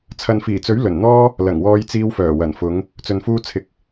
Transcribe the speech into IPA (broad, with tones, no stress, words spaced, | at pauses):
t͡sʰɐ˨nfiː˨˩t͡sɵ˨˥ɥ lɵ˨˩nn̪ɔː˥ | lɐ˨˩ŋwɔː˧jt͡siː˧wfœː˨˩ wɐ˨˩nfʊ˨˧ŋ | t͡sɵ˨nfuː˧t͡sʰɪ˨k̚